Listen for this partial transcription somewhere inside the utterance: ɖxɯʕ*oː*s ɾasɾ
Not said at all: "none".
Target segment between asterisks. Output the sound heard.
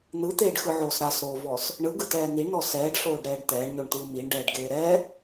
oː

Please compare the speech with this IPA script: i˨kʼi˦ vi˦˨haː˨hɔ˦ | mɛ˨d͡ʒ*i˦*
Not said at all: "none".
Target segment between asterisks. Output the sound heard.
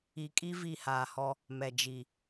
i˨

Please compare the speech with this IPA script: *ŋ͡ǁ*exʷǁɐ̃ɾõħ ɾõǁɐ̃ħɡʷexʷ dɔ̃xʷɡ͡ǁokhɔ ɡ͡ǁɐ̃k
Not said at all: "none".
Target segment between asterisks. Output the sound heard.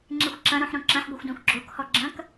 ŋ͡ǁ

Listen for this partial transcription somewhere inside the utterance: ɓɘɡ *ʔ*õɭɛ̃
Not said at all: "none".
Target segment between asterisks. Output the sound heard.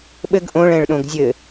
ʔ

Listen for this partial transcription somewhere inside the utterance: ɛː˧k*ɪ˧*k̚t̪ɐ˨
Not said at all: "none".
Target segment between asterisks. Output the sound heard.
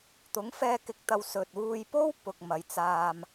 ɪ˨˥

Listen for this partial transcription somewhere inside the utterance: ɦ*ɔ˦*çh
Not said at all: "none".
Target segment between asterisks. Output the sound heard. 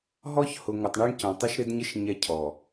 ɔ˦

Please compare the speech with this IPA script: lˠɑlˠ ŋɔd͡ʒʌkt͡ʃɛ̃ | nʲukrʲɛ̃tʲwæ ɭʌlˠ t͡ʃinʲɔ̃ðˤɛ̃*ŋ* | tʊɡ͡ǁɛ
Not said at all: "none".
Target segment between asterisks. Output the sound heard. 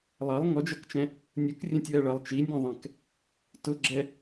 k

